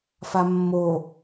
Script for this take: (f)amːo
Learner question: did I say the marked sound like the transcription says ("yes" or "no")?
yes